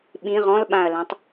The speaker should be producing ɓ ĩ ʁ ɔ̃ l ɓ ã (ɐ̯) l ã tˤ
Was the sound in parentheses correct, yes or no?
yes